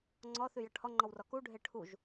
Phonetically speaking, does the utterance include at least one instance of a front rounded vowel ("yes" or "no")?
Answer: yes